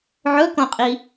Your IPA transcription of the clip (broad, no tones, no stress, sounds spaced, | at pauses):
ʕ ɵ k õ qʼ i